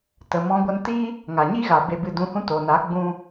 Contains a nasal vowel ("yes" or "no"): yes